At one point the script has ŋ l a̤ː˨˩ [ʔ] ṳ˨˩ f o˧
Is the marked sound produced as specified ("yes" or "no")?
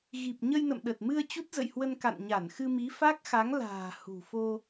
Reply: no